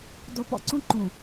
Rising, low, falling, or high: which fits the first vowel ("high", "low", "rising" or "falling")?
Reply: low